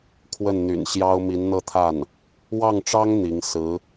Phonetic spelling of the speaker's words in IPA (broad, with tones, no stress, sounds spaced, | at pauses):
kʰ w ə˥˩ n n̪ y̰˨˩ n ɕ j ɑ˥ ʊ̯ m i˧˥ n n̪ ɤ˥˧ t̪ʰ a˥˩ n | w ɑ˥˩ ŋ ʈ͡ʂ ɑ˥ ŋ n̪ i˧˥ ŋ s ɹ̩˧˥